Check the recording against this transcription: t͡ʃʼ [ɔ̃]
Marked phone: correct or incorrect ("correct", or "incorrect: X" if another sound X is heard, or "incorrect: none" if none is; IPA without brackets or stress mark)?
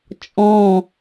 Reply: correct